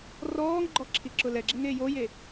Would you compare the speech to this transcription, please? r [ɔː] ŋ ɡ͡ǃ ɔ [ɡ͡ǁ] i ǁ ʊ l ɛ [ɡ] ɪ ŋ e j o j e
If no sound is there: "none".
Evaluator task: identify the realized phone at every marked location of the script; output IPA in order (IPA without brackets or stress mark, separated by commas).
ɔː, ǁʰ, ɡ͡ǁ